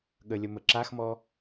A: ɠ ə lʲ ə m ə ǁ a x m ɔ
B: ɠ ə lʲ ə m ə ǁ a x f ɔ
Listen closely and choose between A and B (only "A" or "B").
A